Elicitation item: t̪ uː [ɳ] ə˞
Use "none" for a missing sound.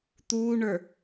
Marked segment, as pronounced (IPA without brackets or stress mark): ɳ